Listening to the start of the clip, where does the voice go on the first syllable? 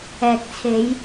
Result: low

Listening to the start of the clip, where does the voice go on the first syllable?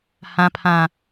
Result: low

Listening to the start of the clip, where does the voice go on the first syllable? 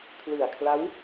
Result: low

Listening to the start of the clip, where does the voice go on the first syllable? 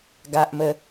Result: high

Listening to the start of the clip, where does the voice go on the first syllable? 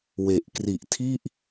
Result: low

